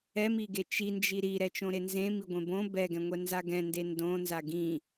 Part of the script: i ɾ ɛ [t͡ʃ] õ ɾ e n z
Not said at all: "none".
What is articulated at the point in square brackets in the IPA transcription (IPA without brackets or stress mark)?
t͡ʃ